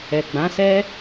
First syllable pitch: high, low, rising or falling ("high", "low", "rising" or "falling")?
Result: low